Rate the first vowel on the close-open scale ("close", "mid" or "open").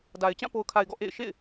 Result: open